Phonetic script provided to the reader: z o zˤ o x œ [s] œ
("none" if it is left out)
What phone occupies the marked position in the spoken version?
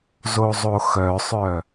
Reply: sˤ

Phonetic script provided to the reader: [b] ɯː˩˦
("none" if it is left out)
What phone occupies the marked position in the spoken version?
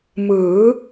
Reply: m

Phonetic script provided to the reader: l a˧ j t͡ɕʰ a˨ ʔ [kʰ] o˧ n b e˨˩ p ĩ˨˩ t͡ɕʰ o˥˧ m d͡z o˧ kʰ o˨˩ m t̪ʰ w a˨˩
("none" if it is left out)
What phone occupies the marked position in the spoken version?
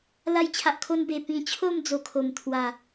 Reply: kʰ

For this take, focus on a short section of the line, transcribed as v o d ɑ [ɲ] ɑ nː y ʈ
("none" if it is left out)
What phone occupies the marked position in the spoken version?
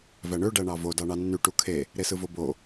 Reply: ɳ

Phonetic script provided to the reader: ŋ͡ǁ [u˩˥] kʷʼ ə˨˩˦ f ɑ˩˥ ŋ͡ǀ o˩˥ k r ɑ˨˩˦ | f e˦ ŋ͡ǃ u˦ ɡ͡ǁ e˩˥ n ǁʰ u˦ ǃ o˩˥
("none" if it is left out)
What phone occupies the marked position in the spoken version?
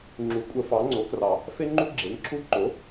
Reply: u˩˥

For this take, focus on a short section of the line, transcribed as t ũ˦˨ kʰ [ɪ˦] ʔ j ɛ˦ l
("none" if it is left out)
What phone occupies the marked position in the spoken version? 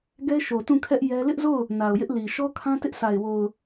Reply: ɛ˦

